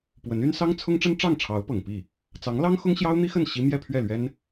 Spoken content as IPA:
p w ə˧˥ n y˥ n s ɑ˥ ŋ t͡sʰ ʊ˥ ŋ ʈ͡ʂ ə˥ n ʈ͡ʂ ɑ˥˩ ŋ ʈ͡ʂʰ ɑ˧˥ ʊ̯ p ɤ˨˩ ŋ p i˥˩ | t͡s ɑ˧˥ ŋ l ɑ˥ ŋ x ʊ˥ ŋ ɕ j ɑ˥ ʊ̯ n̪ i˥ x ə˥˩ n ɕ i˥ m j ɛ˥˧ pʰ ɥ ɛ˥˩ l ɥ ɛ˥ n

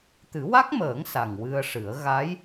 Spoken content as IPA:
t̪ ɨ˨˩˦ w a˦˥ k̚ m əː˨˩˦ ŋ s a˨˩ ŋ w ɨ˧ ə̯ ʂ ɨ˨˩˦ ə̯ ɣ a˧˥ j

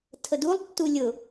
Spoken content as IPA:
tʰ ə d u lˠ tː u lʲ ʊ

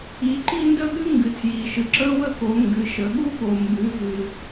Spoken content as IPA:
i˨˦ ǃ i˥ n d ə˥ ɠ ɨ˥ ŋ ɡ ɨ˨˦ tʰ j i˨ ʃ ɨ˨ ǁ ə˥ w ə˥ k o˨˦ ŋ ɡ ɨ˨˦ ʃ ə˨˦ ɠ u˥ ɠ o˨ m b ɨ˨˦ v ɨ˨

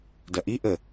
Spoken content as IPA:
d ɐ ʔ i ʔ ə

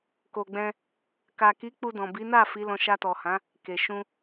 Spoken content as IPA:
k o˨ ɡ͡b ɛ̃˧ | k a˨ k i˨˦ k͡p u˧ d ɔ̃˨ b i˨˦ n a˦˨ f i˨˦ l ɔ̃˧ ʃ a˧ t ɔ˨ h ã˨˦ | k e˨ ʃ ũ˧

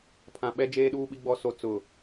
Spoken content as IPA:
pʰ ã˨ ɓ ɛ˦ d͡ʒ eː˦ ɗ uː˦ ɓ i˦ ɡ͡b ɔ˦ s o˦ t͡s ʊ˨

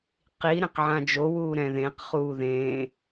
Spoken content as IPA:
q i ɾ ẽ q ʕ ã d͡ʒ o w uː ɾ ɛ̃ ð ẽ q χ uː ð ẽ

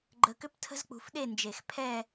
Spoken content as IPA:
ɡ͡ǃ ə˧ k ʏ˥ p tʰ ə̤˥ z k͡p ṳ˧ f ɗ e˥˧ n d͡ʒ e˧˩ x pʰ ɛ˥˧

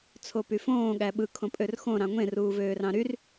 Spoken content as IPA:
t͡sʰ o p y f õː ɠ æ ɓ ɯ kʰ õ pʼ ø r x õ ɾ ɑ̃ ŋʷ ẽ r uː v øː r ɑ̃ ɾ y r

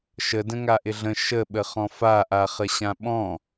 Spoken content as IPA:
ʃ ə d ə̃ ŋ a ʔ ɪ ɮ ə̃ ʃ ə ɓ ə χ ɔ̃ f a ʔ a χ ə ɕ ã ɓ ɔ̃

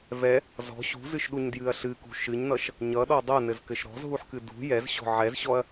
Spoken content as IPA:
v ɛ | z ɔ̤ ɕ ṳ z ɨ ʃ ɗ u ɲ d j ɨ ɐ̯ ɬ ɨ k ṳ ʃ ɨ ɲ n ʌ ʃ | ɲ ʌ ɗ ɔ dˤ ʌ n ɘ z k ɘ ʃ ɾ ɔ̤ z ɦ u ħ k ɨ d ṳ j ɛ z ɕ ɔ̤ ʕ ɛ z ɕ ɔ ɐ̯

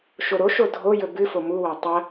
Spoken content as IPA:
ʃ o ɾ o ʃ o dʱ o j ɵ b ɨ f o m u w a tˤ ɐ

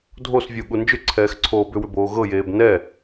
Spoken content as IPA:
dʱ o s vʲ u ɠ u n d͡ʒ ʏ ǀʰ ɛː x ǀʰ oː b ʏ w ʏ b oː ɣ ɤ j eː b n ɛ

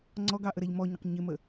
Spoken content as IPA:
ŋ͡ǀ ɔ ɡ ɑ ʔ ə ɾ ɛ ʎ m ɔ ɲ ə q ɲ ɪ m ə

